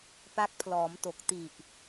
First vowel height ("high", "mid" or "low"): low